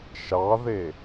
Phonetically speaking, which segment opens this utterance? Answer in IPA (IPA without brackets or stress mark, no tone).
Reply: ʃ